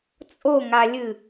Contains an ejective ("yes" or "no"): yes